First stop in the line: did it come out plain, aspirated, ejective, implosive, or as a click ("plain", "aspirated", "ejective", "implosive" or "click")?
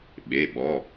implosive